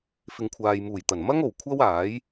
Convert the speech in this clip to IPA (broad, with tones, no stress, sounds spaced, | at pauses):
f ɪ˨ ŋ kʷʰ aː˨ j m uː˨˩ j t̪ ɐ˨˩ n m ɐ˥ ŋ o˨˩ w kʷʰ ɐ˥ w aː˨˥ j